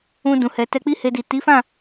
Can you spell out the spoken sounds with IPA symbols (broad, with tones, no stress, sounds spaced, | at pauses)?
ũ˧ d ũ˨ h ɛ˨ t ɛ˧ k͡p i˦ h e˧ d i˨ t i˨˦ f ã˦˨